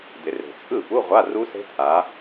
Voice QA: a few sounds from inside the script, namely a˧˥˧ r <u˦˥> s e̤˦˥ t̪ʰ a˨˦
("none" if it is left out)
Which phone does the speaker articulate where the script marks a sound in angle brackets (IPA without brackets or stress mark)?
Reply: u˦˥